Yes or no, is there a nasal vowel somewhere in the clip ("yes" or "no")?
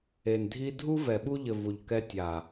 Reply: no